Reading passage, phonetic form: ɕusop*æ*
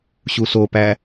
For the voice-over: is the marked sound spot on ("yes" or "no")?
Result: yes